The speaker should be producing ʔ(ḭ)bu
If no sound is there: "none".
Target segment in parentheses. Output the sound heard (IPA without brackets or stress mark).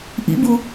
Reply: ḭ